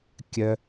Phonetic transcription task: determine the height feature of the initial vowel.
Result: mid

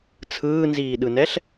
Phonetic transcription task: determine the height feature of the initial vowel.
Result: high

